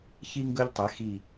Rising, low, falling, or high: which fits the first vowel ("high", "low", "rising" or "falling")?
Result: high